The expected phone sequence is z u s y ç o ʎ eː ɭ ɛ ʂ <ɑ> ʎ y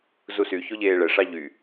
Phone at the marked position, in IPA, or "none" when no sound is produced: ɑ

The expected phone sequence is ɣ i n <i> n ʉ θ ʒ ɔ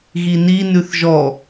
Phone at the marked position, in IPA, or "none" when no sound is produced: i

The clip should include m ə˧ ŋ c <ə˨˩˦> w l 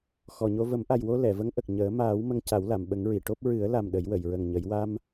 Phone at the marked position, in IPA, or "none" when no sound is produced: a˨˩˦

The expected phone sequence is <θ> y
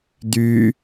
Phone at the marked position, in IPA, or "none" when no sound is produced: d̪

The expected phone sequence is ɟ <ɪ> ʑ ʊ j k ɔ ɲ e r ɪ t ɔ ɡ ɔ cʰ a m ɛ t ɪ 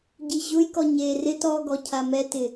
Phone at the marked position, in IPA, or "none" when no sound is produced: i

